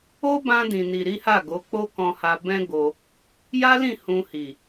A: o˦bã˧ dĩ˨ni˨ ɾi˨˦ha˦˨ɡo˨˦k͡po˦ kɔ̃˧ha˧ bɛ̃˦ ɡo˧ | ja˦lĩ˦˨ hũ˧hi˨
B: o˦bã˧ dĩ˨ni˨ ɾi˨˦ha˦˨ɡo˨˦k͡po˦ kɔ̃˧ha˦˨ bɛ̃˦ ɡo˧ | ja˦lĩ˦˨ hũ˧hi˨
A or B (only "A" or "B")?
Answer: A